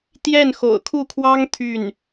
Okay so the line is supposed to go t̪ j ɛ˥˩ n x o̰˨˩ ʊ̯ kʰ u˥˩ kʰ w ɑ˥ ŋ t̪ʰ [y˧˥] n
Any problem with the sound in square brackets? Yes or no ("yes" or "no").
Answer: yes